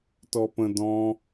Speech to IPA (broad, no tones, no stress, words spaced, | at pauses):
tɔpə̃ dɔ̃